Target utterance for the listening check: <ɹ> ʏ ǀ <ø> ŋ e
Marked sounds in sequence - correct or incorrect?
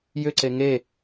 incorrect, incorrect

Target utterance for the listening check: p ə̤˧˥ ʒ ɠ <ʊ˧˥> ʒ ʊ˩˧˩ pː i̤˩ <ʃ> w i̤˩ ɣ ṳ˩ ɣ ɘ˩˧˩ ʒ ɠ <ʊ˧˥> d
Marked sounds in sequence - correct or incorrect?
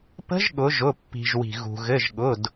incorrect, incorrect, incorrect

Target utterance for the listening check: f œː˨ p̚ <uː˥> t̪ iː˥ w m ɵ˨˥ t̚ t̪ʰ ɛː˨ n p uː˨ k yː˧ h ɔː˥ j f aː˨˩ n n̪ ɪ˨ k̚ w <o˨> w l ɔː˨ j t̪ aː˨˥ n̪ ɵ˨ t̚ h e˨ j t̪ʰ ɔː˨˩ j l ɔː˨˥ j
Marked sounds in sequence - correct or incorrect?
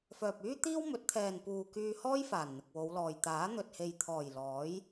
incorrect, incorrect

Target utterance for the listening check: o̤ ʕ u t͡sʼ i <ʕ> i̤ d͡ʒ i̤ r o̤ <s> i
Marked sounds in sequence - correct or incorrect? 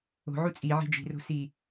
correct, correct

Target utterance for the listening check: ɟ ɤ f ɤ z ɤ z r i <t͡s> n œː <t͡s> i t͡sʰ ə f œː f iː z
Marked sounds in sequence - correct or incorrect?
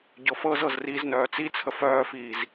incorrect, correct

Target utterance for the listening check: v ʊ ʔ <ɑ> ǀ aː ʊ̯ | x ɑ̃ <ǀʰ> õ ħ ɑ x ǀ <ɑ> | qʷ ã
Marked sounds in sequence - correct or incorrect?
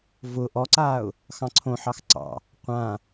incorrect, correct, incorrect

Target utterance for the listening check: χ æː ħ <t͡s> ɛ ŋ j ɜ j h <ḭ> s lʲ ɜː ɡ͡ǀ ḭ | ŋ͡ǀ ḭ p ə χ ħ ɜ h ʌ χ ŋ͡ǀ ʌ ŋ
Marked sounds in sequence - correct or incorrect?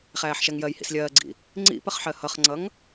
incorrect, correct

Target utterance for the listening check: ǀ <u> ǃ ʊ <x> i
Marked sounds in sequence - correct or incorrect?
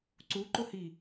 correct, incorrect

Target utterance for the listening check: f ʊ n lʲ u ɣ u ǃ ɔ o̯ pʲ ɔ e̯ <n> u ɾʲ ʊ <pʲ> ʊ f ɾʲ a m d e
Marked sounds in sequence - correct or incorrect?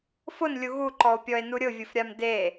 correct, incorrect

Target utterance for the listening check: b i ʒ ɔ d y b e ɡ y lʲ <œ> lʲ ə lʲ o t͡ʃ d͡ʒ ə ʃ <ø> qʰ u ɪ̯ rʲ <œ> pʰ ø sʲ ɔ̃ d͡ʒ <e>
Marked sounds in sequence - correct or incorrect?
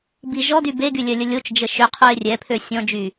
correct, correct, incorrect, incorrect

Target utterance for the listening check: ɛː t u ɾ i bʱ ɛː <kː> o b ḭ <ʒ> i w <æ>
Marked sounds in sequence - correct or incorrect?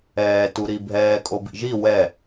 incorrect, correct, incorrect

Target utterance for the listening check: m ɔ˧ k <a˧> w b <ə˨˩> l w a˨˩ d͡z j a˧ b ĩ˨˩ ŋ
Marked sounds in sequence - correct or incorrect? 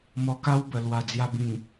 incorrect, correct

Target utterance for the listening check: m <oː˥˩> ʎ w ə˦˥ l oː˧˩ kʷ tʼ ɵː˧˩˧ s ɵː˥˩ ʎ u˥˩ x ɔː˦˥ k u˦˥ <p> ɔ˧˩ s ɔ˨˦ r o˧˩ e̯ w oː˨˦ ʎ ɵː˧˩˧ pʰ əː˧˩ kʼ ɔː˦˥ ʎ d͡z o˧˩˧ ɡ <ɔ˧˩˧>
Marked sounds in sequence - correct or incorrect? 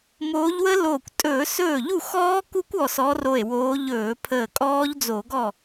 incorrect, incorrect, incorrect

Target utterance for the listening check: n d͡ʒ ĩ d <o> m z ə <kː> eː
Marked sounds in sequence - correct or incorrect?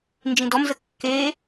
incorrect, correct

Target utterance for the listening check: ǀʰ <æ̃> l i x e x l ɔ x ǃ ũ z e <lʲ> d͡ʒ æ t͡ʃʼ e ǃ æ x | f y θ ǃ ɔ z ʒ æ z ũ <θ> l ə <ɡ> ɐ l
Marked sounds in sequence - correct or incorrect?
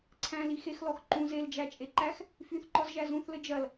correct, incorrect, correct, incorrect

